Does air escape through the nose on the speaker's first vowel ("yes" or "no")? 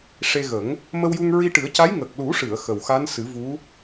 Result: no